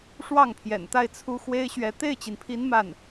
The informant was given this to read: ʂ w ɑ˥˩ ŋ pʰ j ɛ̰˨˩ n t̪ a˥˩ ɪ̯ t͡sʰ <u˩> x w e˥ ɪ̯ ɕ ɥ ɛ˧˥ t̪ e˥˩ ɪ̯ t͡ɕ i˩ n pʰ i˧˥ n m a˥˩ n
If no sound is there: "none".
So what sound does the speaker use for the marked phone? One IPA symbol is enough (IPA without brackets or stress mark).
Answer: u˥